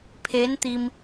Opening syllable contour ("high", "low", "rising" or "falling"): rising